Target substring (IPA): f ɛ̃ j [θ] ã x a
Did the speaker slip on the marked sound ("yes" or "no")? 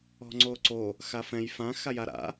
yes